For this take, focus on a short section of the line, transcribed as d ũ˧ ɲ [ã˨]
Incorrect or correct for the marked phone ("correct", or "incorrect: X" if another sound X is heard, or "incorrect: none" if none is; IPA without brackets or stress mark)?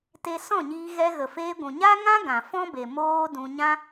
incorrect: ã˦